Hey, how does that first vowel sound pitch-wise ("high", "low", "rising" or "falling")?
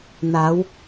rising